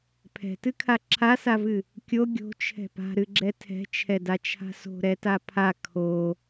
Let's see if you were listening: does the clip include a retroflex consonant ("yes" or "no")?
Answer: no